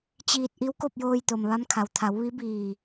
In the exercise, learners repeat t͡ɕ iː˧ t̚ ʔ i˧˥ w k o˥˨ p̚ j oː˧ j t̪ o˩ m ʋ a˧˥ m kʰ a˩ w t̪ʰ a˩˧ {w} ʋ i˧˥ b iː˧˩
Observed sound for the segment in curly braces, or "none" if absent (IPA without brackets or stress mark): w